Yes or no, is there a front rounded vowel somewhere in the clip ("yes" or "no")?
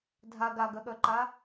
yes